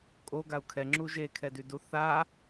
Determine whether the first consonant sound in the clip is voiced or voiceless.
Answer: voiceless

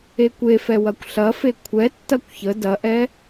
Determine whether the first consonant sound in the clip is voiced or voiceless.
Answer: voiceless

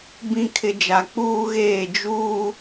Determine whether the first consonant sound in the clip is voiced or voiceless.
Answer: voiced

